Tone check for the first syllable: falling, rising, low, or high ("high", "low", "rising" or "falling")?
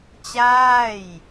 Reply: falling